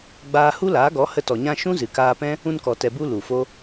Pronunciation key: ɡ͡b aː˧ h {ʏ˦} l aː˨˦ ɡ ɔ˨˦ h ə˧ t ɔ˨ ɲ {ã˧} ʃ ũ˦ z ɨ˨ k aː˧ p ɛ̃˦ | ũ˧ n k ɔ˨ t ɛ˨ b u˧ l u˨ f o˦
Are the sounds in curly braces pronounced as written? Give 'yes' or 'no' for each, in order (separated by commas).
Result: no, yes